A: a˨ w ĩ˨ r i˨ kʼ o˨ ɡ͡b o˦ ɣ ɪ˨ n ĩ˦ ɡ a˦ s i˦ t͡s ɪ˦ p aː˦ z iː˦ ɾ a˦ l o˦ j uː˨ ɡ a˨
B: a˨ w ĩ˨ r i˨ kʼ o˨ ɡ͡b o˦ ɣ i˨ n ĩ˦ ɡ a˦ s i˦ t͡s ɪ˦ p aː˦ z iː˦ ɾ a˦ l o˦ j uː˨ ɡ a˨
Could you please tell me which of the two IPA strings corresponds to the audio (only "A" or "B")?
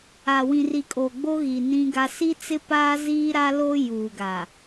B